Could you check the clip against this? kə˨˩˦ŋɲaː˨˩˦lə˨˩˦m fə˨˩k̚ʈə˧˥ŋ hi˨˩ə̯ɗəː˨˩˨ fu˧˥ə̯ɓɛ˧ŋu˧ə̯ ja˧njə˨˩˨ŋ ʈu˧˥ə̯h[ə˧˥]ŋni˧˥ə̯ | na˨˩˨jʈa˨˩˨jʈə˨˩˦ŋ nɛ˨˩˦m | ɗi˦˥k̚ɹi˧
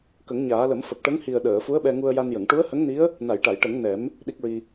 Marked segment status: correct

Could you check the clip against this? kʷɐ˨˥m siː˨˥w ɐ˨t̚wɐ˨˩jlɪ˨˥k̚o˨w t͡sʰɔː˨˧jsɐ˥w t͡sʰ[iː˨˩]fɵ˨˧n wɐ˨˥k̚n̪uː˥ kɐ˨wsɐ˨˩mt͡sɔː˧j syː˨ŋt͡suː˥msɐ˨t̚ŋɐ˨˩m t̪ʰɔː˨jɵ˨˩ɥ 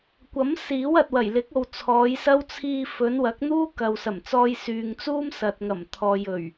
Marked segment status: incorrect: iː˧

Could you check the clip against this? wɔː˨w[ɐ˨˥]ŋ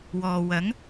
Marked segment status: correct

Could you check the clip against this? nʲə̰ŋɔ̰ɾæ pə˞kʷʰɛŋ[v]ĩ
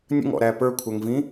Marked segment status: correct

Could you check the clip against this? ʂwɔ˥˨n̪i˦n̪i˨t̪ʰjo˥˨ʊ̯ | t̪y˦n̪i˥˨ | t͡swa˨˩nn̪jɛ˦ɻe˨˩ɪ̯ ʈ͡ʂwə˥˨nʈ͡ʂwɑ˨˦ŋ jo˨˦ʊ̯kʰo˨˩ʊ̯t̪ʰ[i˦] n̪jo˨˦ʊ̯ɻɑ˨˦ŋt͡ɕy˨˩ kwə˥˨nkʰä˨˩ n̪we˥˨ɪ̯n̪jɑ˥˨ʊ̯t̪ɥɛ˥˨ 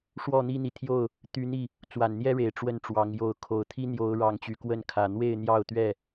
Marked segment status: correct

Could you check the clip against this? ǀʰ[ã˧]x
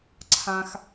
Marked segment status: correct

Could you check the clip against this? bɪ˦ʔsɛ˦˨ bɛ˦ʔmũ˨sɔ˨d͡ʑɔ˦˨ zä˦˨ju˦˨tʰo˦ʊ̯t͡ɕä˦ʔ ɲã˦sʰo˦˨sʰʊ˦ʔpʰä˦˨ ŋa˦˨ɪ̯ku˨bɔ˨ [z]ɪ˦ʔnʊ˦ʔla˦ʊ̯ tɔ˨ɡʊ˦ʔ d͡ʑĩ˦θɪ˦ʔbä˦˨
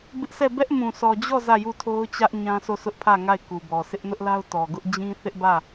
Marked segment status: incorrect: s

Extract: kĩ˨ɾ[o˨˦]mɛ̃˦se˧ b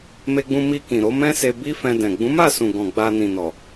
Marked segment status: correct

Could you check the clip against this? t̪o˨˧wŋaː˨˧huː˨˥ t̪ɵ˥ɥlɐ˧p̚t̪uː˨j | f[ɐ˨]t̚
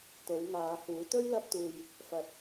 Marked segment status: correct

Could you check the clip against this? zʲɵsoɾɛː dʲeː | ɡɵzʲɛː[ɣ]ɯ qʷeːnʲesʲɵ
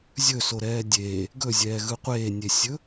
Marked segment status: correct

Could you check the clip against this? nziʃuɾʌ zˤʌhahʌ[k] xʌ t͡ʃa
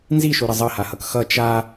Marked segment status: correct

